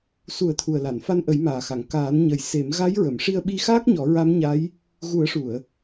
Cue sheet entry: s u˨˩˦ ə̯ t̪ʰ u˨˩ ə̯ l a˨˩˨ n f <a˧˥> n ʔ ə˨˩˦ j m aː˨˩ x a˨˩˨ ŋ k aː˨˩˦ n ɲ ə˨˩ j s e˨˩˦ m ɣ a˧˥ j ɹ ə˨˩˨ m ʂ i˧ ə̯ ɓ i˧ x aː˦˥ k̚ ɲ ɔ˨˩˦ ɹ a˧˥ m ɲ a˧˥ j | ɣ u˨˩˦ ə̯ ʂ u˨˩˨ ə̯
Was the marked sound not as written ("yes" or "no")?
yes